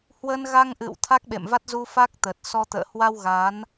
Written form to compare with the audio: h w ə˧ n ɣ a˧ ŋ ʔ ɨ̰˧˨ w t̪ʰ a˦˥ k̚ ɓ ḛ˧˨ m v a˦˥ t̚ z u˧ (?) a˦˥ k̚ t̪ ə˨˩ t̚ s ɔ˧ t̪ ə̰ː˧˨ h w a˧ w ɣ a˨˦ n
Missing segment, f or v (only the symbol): f